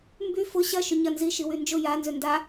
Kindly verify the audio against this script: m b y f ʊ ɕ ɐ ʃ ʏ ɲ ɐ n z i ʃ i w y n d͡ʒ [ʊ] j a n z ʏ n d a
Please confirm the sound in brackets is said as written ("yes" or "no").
yes